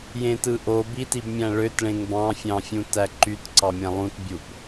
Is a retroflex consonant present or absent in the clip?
present